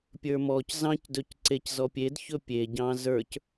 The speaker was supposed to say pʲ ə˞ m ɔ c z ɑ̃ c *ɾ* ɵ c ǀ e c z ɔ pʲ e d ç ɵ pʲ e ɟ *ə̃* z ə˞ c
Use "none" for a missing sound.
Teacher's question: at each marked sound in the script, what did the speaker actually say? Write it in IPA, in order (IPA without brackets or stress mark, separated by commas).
d, ɑ̃